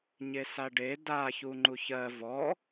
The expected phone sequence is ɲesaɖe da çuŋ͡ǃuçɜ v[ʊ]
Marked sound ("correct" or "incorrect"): incorrect